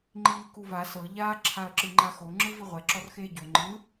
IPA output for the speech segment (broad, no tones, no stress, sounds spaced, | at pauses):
ŋ͡ǃ iː k u v a s ɤ ʎ a ǁʰ a ɐ̯ ǁ ɯ ŋ͡ǃ a x o ŋ͡ǁ ɯ v i ʁʷ ɛ ǁ ɔ r x eː ɟ o ŋ͡ǃ ɯ